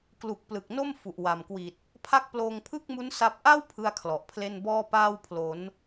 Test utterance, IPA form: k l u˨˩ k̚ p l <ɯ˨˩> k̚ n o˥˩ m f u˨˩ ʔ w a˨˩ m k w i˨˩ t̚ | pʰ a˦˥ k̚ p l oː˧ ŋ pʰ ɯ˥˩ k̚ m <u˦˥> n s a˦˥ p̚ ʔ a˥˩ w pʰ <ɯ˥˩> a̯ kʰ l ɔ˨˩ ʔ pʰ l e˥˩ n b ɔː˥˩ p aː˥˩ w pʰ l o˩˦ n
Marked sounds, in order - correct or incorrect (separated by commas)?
correct, correct, correct